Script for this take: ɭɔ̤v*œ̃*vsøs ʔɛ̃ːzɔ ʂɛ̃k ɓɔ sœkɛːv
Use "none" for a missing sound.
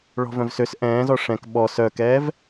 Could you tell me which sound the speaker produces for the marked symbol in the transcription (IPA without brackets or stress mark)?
œ̃